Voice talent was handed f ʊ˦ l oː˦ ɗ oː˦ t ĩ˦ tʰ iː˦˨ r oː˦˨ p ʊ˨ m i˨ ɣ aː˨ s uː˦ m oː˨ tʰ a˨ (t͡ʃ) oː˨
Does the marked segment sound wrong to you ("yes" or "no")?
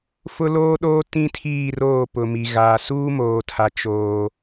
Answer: no